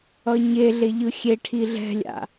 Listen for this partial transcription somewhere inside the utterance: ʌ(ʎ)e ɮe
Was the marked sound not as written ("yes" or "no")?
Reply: yes